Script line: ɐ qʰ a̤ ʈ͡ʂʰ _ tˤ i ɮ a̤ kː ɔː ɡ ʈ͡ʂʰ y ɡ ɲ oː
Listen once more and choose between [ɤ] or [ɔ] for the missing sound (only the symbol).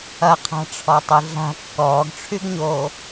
ɔ